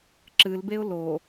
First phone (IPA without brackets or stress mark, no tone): ǁ